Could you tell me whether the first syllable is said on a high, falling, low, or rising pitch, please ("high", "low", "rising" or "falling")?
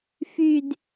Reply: high